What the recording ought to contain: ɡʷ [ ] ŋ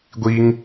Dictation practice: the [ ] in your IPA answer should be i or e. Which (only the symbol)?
i